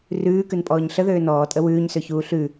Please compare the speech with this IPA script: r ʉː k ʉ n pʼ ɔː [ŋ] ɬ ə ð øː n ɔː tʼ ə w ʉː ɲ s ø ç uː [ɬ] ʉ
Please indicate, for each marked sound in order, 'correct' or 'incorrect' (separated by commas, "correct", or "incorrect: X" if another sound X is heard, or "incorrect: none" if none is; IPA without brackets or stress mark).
incorrect: ɲ, correct